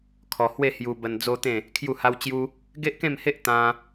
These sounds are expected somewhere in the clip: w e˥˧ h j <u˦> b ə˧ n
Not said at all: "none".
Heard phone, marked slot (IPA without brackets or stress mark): u˧